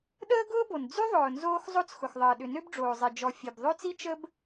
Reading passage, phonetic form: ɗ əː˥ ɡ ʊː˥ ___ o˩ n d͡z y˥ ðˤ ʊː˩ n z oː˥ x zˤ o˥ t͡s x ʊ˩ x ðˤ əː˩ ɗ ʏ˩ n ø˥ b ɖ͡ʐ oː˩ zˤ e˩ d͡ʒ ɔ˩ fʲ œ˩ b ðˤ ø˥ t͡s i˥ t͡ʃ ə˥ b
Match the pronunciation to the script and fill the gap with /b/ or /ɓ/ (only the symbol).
b